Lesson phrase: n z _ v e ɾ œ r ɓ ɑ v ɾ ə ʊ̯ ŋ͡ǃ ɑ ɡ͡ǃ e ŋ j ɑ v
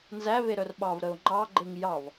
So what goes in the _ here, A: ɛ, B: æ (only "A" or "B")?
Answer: B